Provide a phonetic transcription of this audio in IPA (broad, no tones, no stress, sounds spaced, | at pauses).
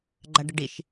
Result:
ɡ͡ǃ a ɖ ə ɖ i ʃ